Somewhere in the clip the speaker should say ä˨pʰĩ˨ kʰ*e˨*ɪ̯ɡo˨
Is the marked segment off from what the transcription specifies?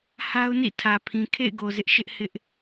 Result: yes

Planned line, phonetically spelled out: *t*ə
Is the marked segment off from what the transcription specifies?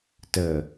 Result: no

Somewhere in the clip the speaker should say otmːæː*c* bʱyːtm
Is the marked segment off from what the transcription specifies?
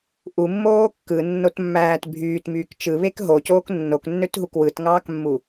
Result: yes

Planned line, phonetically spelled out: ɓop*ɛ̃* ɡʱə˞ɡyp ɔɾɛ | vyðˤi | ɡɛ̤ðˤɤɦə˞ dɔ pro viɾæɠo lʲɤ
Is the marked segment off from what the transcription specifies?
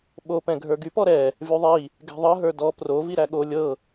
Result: no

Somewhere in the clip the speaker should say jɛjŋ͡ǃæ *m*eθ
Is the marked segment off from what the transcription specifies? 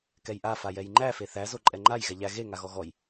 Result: yes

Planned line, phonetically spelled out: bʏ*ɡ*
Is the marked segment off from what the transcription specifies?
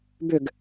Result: no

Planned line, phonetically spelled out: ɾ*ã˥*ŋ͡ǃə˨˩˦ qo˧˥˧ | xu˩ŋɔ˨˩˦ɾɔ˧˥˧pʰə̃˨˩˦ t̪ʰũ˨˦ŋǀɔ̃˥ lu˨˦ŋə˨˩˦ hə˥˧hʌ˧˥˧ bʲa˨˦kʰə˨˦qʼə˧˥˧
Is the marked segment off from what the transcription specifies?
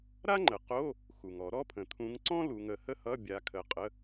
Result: yes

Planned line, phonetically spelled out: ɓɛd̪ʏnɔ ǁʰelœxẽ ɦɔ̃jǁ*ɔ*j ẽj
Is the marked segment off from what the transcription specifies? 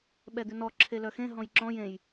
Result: yes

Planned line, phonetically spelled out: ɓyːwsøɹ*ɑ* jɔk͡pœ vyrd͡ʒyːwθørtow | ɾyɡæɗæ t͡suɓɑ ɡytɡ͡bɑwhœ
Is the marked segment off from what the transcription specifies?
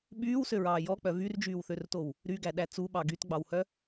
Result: yes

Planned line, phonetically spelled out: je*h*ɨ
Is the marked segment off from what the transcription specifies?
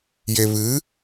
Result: yes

